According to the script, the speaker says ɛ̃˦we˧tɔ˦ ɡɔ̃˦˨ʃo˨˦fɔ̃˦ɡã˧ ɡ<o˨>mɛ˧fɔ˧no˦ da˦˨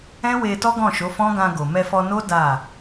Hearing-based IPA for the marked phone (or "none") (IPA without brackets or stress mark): o˨